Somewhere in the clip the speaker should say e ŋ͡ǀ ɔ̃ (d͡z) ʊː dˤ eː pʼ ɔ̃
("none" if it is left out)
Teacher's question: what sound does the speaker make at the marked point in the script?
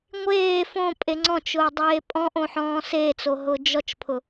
t͡ʃ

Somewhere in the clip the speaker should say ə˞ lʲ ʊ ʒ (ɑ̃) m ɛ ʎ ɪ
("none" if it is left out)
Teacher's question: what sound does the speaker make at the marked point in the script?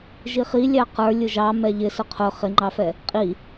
ɑ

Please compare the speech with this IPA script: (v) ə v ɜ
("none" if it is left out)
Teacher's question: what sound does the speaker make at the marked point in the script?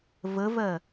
v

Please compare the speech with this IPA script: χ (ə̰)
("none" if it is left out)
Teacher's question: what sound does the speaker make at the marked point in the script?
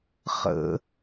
ə̰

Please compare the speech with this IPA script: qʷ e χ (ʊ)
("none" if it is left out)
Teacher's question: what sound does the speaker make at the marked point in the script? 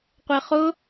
ʊ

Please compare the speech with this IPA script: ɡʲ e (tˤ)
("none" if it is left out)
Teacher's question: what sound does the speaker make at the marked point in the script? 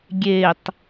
tˤ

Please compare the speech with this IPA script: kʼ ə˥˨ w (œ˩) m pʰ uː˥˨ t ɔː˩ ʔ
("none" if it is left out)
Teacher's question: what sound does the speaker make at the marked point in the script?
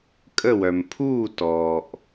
œ˩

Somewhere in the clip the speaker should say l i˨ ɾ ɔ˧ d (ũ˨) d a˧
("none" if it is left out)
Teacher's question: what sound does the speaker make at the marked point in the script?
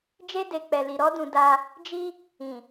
ũ˨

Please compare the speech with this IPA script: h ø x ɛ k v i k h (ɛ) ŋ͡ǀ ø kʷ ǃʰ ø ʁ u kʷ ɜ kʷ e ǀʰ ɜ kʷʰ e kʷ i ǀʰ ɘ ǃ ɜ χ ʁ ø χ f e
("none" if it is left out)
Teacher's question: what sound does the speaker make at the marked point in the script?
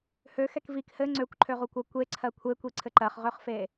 ɘ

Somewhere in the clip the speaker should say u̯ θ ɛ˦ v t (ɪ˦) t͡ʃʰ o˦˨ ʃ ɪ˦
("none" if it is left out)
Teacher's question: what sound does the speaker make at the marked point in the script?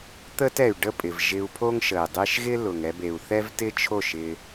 ɪ˦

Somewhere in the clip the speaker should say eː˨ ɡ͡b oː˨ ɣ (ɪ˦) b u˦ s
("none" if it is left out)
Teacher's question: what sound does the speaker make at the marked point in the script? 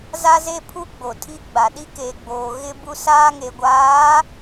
ɪ˦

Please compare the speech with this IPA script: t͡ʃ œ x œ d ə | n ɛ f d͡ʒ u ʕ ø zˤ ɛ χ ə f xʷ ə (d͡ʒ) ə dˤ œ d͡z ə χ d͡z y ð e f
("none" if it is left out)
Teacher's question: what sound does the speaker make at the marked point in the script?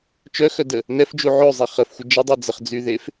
d͡ʒ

